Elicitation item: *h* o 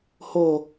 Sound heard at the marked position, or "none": h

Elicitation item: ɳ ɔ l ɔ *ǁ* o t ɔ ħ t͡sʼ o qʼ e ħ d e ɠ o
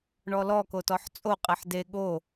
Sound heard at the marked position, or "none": k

